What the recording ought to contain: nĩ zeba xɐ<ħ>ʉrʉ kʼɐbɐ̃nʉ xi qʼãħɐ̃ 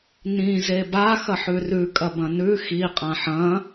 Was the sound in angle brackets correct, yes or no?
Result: yes